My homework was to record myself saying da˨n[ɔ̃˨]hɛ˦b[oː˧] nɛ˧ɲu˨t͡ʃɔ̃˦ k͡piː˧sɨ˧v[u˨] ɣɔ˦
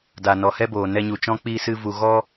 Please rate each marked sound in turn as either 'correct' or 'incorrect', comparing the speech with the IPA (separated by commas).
incorrect, incorrect, correct